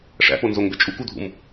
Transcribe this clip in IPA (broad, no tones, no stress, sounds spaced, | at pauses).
ʂ æ̰ p o n z o ŋ b e t͡ʃʼ u k u dʱ ṵ m